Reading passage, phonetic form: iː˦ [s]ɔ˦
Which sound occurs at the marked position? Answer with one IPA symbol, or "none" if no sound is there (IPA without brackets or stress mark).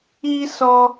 s